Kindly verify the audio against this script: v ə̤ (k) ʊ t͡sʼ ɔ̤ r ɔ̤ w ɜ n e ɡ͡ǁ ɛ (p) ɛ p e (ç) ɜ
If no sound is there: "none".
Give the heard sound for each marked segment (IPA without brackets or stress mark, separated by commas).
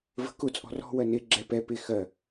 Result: k, p, x